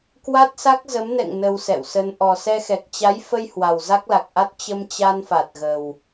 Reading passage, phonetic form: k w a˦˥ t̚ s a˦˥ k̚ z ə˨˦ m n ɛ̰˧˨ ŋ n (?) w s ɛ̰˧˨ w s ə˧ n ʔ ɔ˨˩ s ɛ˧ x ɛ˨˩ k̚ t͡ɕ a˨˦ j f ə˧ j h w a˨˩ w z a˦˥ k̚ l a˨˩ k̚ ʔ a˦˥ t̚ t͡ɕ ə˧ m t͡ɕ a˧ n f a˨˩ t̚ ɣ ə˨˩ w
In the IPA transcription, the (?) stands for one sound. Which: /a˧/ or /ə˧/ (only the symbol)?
ə˧